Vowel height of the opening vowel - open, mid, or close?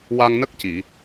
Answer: open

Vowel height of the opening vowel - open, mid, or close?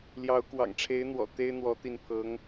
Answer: open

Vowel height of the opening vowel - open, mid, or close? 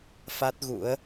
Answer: open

